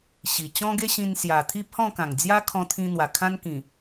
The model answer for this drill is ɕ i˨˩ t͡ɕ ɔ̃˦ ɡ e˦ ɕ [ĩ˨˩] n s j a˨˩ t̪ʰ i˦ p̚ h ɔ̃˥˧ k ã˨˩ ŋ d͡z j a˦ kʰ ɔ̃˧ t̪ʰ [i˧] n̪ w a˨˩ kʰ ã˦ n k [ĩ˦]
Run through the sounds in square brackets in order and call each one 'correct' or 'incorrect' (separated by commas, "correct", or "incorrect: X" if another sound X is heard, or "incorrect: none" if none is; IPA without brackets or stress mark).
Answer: incorrect: ĩ˧, incorrect: ĩ˧, incorrect: ĩ˨˩